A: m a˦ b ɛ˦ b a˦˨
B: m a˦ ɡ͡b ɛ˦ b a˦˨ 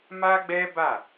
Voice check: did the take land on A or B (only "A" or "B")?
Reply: B